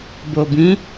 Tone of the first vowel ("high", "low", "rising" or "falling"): low